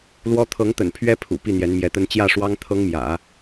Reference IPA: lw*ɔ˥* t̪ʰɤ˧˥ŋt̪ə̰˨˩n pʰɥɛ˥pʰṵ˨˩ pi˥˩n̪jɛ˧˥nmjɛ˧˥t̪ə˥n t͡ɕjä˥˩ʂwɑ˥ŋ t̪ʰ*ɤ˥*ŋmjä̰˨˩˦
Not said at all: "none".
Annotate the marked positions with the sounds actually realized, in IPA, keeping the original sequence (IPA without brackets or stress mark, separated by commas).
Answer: ɔ˥, ɤ˥